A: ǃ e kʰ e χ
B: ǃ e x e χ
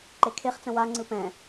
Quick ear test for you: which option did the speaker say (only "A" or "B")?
A